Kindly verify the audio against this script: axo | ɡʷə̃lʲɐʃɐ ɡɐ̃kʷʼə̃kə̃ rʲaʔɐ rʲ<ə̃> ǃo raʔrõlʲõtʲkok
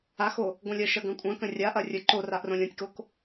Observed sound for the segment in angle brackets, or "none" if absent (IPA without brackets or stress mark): ə